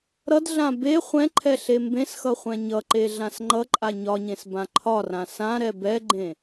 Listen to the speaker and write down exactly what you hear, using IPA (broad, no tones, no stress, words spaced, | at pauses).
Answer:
ɾʌdɮã be χʷɛ̃ǃʰɛ ɬembẽsxʌ χʷɛ̃ɲʌǃe ɮãsŋ͡ǃʌǃʼa ɲɒɲẽs bãǃʰɒrã sã ɾɛbɛɡ͡ǃẽ